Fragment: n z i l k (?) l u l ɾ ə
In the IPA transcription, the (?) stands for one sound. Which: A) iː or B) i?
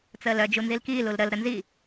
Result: A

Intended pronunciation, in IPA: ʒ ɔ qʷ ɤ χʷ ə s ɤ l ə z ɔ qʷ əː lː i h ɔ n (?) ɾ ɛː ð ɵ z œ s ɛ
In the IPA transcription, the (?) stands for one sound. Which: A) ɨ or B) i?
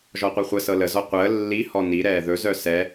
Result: B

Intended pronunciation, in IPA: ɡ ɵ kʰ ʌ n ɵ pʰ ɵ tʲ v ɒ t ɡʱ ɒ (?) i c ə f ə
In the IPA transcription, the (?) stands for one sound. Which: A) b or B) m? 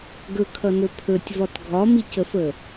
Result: B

